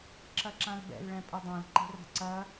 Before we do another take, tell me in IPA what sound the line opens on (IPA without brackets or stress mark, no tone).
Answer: ǁ